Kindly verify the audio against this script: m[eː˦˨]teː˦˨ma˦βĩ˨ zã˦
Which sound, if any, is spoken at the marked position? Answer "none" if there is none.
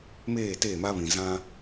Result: eː˦˨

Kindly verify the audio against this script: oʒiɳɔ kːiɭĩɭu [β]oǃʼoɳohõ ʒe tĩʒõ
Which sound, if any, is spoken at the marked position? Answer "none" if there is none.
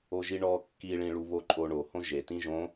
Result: β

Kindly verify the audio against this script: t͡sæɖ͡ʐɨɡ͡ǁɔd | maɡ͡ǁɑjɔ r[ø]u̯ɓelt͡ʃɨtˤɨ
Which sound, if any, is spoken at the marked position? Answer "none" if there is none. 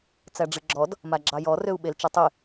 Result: ø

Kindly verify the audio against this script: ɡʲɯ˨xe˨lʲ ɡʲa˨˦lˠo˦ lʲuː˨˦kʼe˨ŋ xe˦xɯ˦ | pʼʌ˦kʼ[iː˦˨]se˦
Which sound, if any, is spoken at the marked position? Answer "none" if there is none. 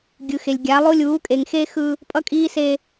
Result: iː˦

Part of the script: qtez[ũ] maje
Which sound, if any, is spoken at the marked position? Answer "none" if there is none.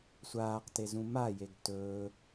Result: ũ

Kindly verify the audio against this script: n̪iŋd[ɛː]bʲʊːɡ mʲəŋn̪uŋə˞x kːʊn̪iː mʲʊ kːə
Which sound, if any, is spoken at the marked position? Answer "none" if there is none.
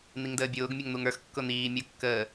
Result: əː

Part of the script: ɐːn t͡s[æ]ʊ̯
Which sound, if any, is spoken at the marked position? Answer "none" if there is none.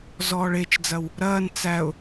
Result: æ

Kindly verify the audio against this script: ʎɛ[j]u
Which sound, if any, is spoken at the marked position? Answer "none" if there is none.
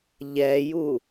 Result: j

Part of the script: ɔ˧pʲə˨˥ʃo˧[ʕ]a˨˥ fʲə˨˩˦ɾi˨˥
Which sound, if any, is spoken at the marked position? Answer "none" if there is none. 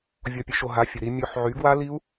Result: ɦ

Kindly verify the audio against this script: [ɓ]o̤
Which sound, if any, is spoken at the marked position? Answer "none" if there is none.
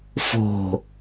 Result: f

